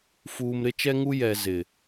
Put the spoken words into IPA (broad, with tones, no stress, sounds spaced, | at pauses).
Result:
f uː˨ m ɾ ɪ˦ t͡ʃ ɛ˦ ŋ u˦ j ɛ˨ z ɪ˨